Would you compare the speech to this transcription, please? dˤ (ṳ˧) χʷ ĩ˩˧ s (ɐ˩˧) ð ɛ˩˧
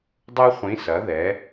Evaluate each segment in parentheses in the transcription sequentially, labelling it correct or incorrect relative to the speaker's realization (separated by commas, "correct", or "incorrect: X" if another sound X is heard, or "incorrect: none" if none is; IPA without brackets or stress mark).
incorrect: u˧, correct